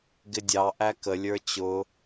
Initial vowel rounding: unrounded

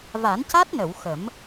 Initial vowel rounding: unrounded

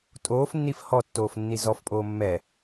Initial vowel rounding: rounded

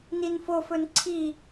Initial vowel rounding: unrounded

